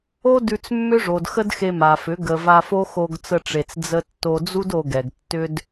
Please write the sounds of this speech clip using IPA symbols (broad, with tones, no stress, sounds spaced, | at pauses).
o˦ d ʉ˧ t͡s mː ʏ˦ ʐ o˨ d x ə˦ d x e˧ m a˨ f ʏ˨˦ ɡ ə˨ v a˧ f o˦ x o˧ ɡ t͡s ə˧ ʈ͡ʂ e˨ t͡s d͡z ə˧ tː o˧ d͡z u˦ d o˧ ɡ ɛ˨ ɡ tː ʏ˦ d